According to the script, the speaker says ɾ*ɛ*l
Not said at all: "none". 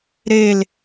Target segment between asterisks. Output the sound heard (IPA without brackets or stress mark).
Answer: e